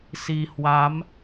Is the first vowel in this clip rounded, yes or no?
no